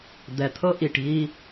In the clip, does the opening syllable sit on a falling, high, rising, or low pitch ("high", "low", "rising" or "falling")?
low